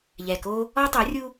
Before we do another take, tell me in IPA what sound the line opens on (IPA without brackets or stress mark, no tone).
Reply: ʎ